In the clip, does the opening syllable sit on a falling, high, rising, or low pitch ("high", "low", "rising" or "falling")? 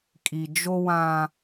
low